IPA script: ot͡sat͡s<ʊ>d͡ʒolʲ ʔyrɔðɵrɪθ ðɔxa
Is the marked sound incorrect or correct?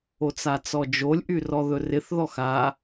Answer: incorrect